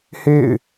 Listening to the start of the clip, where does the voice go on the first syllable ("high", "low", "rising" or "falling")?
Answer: falling